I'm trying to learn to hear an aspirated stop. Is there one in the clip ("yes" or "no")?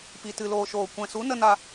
no